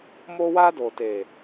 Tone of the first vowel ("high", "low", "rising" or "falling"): high